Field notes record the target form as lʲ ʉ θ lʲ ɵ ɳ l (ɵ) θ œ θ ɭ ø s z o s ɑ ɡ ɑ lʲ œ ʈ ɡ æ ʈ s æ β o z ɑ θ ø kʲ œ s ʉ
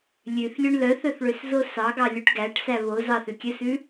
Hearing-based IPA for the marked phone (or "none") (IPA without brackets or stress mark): œ